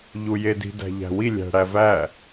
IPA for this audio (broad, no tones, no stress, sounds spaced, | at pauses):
ʎ u j e d i̤ d æ̤ ʎ æ̤ w i lʲ æ̤ ɽ æ v æ